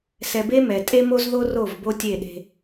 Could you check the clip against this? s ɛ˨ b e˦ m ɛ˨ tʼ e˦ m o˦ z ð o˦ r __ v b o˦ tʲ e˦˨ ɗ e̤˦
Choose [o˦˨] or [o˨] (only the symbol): o˦˨